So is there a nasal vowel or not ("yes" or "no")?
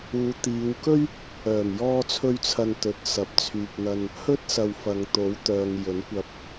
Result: no